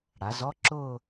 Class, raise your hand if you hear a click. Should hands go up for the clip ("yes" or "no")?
yes